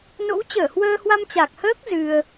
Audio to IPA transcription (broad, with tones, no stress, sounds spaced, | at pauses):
n o̰˧˥ w t͡ɕ əː˧˩ h w əː˧ h w a˧ m t͡ɕ a˨˩ k̚ h əː˦˥ k̚ z ɨ˧ ə̯